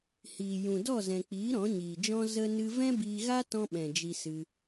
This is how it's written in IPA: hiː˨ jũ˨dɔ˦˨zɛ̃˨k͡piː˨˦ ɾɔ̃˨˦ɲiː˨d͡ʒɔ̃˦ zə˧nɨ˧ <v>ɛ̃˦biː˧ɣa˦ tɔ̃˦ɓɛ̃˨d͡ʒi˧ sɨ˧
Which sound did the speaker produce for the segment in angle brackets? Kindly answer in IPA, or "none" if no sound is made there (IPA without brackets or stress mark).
v